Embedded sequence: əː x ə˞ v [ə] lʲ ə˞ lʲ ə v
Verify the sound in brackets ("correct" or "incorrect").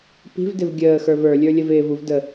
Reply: incorrect